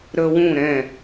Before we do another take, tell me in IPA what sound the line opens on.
ɾ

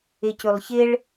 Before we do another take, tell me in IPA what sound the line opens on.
ɪ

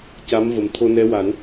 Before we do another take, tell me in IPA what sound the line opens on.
c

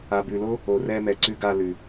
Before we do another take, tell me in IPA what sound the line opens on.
a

